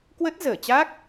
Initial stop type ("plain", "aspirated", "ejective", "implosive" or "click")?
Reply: plain